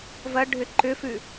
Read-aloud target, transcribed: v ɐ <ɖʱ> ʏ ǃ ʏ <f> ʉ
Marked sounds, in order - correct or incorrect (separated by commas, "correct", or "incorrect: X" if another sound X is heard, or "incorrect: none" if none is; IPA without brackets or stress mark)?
correct, correct